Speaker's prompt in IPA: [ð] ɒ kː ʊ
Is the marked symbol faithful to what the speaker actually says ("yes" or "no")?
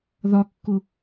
yes